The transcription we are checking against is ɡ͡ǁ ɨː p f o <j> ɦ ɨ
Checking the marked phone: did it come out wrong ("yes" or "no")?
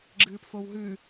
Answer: yes